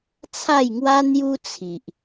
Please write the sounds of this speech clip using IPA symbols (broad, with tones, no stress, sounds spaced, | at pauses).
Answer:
t͡sʰ a˥˧ j ŋ w a˦ n̪ j u˦ t͡sʰ i˨ ʔ